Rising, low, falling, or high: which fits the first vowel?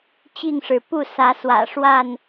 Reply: falling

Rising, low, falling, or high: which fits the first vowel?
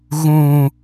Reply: low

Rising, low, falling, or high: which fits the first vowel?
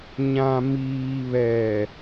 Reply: low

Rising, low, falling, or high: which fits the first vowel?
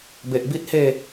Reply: low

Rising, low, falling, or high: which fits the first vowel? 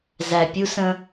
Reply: low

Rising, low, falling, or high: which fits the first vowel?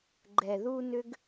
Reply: low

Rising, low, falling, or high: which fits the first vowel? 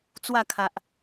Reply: falling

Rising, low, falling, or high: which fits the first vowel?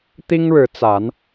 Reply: high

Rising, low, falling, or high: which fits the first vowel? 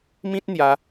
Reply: high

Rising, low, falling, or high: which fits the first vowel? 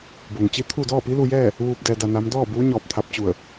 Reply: low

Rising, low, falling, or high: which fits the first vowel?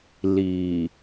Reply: low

